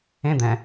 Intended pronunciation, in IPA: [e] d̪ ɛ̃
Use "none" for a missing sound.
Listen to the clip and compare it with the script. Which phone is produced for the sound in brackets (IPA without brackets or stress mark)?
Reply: ẽ